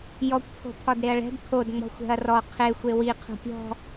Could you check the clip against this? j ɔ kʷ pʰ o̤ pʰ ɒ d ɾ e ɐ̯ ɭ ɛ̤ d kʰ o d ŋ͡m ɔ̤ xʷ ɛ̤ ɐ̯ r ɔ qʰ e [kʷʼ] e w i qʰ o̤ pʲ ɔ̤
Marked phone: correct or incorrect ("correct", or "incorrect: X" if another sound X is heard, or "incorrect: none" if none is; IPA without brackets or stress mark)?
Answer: incorrect: xʷ